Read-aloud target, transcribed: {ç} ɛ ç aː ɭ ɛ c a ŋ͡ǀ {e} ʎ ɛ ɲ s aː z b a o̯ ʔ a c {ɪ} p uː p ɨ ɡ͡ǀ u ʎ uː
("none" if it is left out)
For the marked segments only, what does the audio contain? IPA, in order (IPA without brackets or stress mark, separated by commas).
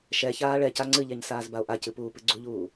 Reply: ʃ, ɨ, ɨ